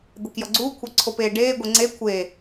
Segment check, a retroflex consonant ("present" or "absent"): present